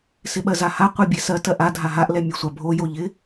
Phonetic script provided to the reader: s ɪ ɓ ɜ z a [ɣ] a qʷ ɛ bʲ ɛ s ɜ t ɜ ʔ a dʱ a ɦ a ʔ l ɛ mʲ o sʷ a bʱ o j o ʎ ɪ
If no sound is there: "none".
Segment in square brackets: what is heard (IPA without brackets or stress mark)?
h